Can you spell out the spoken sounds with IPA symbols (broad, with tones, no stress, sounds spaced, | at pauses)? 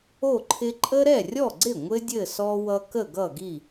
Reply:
o˥˩ ǃʰ ɪ˦ ǃʼ ə˦ ɾ ɛ˥˩ rʲ ɔ˥˩ ɡ͡ǀ ɪ˥˩ ŋʷ ɘ˦ dʲ ɘ˥˩ s ɔ˦ w ʌ˦ k ə˥˩ ɡ ʌ˥˩ ɡ i˥˩